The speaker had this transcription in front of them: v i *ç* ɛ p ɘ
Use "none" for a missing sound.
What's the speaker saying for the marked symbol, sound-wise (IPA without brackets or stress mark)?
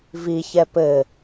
ç